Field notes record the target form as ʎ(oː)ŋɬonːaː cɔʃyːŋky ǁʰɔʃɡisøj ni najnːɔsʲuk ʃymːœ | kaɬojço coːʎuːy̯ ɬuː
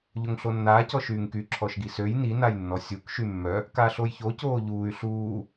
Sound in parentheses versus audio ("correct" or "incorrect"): incorrect